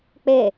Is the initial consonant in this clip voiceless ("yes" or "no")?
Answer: yes